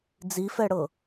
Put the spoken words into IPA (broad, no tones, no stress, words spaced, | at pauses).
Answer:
d͡zifɛɽɤ